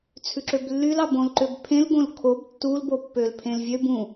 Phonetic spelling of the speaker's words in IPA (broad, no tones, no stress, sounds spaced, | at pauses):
t͡sʰ ʉ ǁ ø b lː y l ɑ b õ l ǃ ø b pʰ ẽ l ɡ õ l kʰ o b tː u l b o pː ø l pʰ ẽ l vʲ ø b ũ